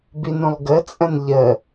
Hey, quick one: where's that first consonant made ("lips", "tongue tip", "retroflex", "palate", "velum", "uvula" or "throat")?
lips